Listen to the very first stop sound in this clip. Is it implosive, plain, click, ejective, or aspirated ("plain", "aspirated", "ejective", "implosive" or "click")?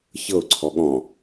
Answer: click